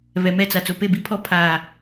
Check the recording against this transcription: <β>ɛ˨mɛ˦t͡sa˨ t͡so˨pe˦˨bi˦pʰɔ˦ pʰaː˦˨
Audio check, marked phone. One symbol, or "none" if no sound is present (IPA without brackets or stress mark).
β